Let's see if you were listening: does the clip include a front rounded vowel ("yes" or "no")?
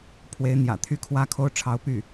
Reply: yes